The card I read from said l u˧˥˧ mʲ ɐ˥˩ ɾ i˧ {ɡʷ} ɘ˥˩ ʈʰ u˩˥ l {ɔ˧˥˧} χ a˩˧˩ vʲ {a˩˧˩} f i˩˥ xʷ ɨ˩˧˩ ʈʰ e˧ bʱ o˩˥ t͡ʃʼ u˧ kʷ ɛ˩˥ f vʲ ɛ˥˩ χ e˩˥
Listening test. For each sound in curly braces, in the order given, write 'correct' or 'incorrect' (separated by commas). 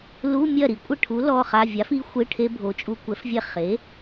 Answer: incorrect, incorrect, incorrect